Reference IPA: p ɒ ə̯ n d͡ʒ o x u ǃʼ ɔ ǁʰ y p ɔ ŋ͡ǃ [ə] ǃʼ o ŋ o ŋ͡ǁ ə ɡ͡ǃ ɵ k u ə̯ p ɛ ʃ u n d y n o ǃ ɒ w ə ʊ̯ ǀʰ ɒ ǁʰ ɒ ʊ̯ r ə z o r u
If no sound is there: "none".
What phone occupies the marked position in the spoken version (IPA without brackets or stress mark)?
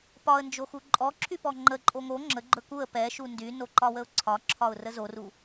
ə